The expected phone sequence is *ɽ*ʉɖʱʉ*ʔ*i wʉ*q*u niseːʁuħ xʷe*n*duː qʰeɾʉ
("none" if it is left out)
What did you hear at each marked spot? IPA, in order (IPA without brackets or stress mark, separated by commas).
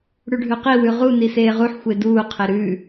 ɽ, q, ʁ, none